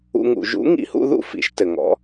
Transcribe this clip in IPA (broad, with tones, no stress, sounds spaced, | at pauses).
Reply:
ṵ˦ ŋ ṵ˨˩˦ ʒ ṵ˨˥ ŋ ḭ˨˩˦ h ṵ˦ ð ṵ˥˨ f ḭ˨˩˦ ʃ t ɘ˨ ŋ ɔ̰˨˥